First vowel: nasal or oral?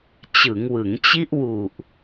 oral